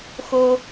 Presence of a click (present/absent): absent